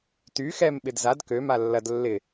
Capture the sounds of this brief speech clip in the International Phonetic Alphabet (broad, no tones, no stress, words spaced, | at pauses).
ty xɛm ɓɪdzad kø malːɐd lːɪ